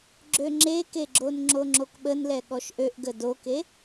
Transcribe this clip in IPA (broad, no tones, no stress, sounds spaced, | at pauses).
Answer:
ɡ͡ǁ ø ŋ͡ǁ e k e ɡ͡ǁ o n ŋ͡ǁ o ŋ͡ǁ o k ɓ ə n l ɛ ɠ ɔ ʃ ʔ ø ʔ ɡ ə d o k e